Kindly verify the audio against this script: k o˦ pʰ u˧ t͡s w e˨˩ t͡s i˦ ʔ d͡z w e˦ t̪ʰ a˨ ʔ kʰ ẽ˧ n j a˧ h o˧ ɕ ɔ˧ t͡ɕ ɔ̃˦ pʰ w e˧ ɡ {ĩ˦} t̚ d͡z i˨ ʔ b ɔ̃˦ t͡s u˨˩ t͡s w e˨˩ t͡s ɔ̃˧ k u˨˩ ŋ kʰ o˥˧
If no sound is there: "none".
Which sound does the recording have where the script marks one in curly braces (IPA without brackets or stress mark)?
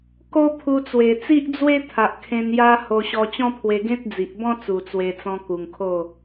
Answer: ẽ˦